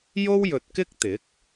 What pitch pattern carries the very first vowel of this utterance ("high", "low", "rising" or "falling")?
high